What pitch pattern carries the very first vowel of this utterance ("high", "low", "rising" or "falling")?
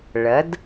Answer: rising